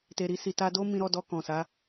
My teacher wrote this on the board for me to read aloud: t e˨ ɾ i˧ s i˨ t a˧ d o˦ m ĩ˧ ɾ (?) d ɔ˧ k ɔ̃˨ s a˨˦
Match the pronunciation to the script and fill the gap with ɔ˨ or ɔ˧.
ɔ˧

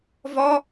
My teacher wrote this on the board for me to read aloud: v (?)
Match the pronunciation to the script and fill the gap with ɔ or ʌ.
ɔ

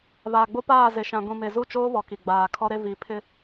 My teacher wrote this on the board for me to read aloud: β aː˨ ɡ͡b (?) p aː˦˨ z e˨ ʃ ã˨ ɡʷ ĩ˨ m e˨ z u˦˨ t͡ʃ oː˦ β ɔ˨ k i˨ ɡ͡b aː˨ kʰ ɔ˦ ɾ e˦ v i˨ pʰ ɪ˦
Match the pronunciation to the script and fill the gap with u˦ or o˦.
o˦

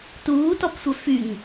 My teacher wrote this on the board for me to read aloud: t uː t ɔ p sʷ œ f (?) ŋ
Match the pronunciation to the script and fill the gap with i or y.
y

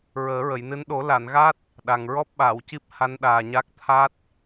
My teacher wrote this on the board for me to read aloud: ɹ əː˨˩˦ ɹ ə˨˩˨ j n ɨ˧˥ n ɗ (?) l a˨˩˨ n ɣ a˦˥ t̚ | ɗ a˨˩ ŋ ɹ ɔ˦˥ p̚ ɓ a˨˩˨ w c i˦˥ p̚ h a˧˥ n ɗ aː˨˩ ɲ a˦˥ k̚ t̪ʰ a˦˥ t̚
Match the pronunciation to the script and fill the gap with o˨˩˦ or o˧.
o˨˩˦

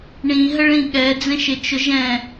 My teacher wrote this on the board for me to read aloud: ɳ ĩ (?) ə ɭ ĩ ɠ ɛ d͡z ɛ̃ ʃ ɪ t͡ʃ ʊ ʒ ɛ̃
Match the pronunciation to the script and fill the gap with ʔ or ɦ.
ɦ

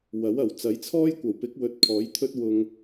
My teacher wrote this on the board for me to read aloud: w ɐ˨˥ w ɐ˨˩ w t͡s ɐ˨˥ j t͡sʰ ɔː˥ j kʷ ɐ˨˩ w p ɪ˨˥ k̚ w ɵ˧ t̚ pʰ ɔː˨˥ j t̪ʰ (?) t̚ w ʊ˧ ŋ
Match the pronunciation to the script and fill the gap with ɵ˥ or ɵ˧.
ɵ˥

